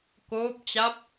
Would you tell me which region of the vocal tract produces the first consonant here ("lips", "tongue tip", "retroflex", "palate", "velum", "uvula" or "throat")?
velum